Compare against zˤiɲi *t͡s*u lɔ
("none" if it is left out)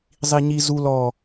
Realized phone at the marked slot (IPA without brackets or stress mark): z